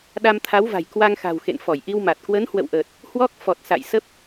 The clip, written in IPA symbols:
ɗa˧mt̪ʰa˨˦wva̤˨˩j kwa˧ŋxa̤˨˩w xḛ˧˨nfɔ˧˩jʔi˧wma˨˩t̚ kwə˨˦nhwə̰˧˨wʔəː˨˩t̚ | hwɔ˦˥k̚ fɔ˨˩t̚ sa̰˧˨jsə˦˥p̚

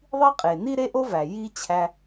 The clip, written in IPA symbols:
ðˤi˥qʼe˩ ni˥ɾe˥ʔo˥væ˩ ji˥ t͡ɕʰæ˧

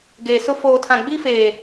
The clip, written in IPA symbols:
ɡeː˨sʊ˦ foː˨ tʰã˨ ɡ͡bi˦feː˨

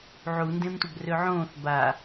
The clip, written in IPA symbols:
ʕundẽmtʷəb røʕõːθ ba

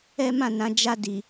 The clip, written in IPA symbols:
ɛ˦ mã˦˨nã˨˦ d͡ʒa˧ di˨

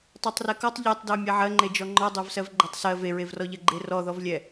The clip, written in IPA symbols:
tˤɜtˤrɛkɔtˤ ʎɛtˤdɜ mʲɛʕɜŋ͡ǃe d͡ʒɔŋ͡ǃɔ dˤɜvsɜvɡ͡ǃɜtˤsɜ veɹevrɔʎɜ ɡ͡ǃerɔðɔvlʲɛ

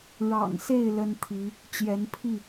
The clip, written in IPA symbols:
ɻɑ̰˨˩ŋse˥˨ɪ̯ lə˦nt̪ʰi˨˦ | t͡ɕjɛ˨˦npʰi˥˨

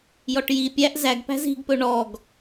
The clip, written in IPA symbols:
jɔʈji pʲæʔ zæɡpæ̤ zi̤ɡpɵ ɳɔɡ

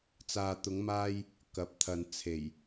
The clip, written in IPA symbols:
t͡saː˨t̪ʊ˨˧ŋmaː˧j | kɐ˨˥p̚t̪ʰɐ˨n t͡sʰe˨˩j

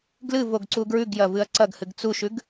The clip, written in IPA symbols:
ɡlɨvoɡ ǀuɡɹʉɡ jɐvɨɐ̯ǀɐɡ hɨɡt͡suʃʉɡ

